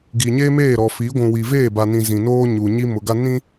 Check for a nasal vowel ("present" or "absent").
present